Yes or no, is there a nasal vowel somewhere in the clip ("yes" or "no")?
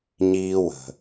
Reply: no